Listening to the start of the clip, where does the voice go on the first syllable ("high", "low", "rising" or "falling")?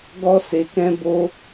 high